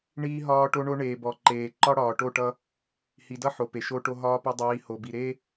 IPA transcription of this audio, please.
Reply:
ɳ iː˦ ɦ ɒː˦ ʈ o˦ ɳ o˦ ɳ eː˨ b ɔ˨ ǃ eː˨ ǃ ɒ˦ ɽ ɒː˨ ʈ o˦˨ ʈ ʌ˦ | h i˨ d ʌ˦ ħ o˨ p e˨ ʃ o˦ ʈ o˦ ɦ ɒː˦ p ɒ˦ dˤ iː˨˦ h o˨ b i˨ ɾ e˦

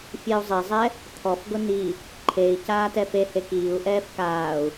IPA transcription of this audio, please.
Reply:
fʲ e u̯ zˤ e zˤ ɛ | t̪ʰ ɔ f ɡ ʊ n i | ǃʰ e i̯ c aː t ɛ f e h e k iː u̯ ʔ ɛː f k aː u̯

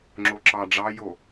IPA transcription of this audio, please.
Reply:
ŋ͡ǁ o ǁ ɑ ɖ͡ʐ ɑ j o

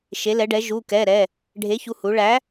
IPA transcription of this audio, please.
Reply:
ʃ e˩˧ l ɛ˩˧ ɖ ɛ˩˧ ʒ u˩˧˩ k ɛ˩˧˩ ɾ ɛ˩˧˩ | ɖʱ e˨˥ ç u˩˧˩ h u˩˧ ɭ æ˨˥

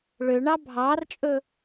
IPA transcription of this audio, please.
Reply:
ɭ ø ɳ ɑ bʱ ɑː r t͡ʃʼ ɵ

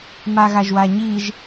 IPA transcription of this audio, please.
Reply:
m a ɣ a ʒ w a ɲ i ʒ

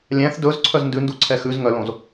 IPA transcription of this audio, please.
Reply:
lʲ æ̃ θ d ɵ z ǀʰ œ z n d ʉ n d u ǀʰ ɛ x ʉ z ŋ œ l õ z

